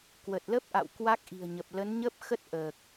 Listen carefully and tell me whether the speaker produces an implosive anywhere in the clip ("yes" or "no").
no